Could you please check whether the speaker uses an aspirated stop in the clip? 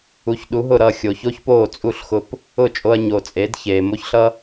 no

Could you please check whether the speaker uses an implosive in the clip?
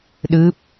yes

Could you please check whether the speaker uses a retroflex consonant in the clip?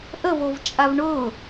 yes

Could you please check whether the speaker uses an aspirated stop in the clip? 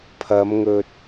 yes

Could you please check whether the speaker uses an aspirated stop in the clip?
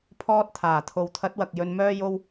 yes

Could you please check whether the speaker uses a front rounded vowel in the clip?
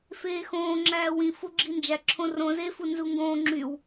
yes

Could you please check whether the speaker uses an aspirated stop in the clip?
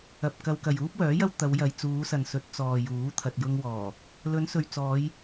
yes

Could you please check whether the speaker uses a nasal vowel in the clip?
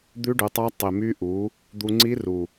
no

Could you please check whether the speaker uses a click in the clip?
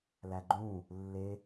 yes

